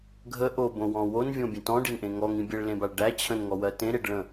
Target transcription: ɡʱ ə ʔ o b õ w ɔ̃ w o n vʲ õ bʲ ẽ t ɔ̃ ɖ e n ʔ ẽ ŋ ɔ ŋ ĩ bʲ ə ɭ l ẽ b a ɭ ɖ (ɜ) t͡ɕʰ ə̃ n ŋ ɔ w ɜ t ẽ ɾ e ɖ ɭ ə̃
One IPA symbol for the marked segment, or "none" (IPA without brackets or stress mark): æ